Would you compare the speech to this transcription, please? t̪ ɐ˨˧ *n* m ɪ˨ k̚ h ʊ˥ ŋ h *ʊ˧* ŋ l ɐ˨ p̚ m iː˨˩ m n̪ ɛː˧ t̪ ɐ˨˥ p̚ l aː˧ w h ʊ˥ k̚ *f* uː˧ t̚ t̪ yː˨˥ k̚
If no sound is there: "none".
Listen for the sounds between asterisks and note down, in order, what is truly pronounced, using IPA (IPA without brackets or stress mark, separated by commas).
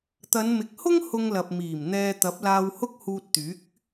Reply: n, ʊ˧, h